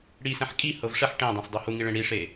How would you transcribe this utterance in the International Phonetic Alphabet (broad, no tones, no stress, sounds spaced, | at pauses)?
ɽ i s ɛ̃ ħ kʼ i h ɤ v ʂ ɛ ħ ʈ ẽ dˤ ɛ̃ s dˤ o h u ŋ i ɭ ẽ ɽ i ʂ e